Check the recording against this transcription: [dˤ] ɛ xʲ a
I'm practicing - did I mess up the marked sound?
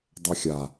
no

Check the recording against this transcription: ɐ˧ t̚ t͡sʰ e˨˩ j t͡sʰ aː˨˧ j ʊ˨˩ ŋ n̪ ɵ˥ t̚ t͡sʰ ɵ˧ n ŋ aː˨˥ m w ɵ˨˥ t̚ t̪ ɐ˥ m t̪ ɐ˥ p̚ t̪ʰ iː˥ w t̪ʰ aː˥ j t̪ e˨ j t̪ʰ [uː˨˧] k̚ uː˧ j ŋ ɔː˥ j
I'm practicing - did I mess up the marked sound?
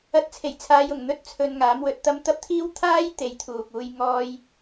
yes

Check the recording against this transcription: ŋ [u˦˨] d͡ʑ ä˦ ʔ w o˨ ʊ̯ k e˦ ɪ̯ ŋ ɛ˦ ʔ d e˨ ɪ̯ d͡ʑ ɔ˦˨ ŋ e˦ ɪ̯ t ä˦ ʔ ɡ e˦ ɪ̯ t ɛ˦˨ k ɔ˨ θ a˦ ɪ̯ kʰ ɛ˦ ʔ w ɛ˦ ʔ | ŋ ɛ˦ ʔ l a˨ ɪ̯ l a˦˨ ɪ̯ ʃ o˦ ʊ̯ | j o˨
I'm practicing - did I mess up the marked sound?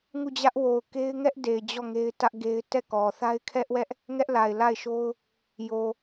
no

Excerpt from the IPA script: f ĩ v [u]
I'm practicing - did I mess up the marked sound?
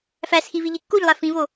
yes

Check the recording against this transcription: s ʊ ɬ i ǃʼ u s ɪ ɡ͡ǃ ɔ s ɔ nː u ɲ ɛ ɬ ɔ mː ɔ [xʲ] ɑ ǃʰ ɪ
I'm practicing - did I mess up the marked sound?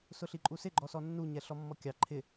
yes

